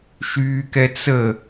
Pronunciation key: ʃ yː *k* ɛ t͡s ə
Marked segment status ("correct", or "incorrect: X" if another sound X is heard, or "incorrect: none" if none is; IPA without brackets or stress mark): correct